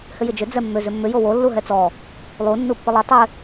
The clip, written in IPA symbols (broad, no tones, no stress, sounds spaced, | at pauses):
h ʏ j ɪ d͡ʒ ʏ d͡z ɛ mː ʏ z ʏ mː ʏ j o w o lː u ɦ ɛ t͡s ɔ | lˠ u nː u pː ɪ lˠ ʏ tˤ ɪ